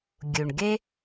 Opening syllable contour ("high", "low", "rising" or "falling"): low